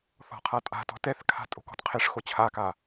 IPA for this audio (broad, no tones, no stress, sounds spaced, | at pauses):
θ ɔ̤ qʰ a tʼ a̤ t ɔ̤ t ɛ θ kʰ a̤ tʼ o̤ k ɔ̤ t qʰ e ʂ x o t͡ɕʰ a k a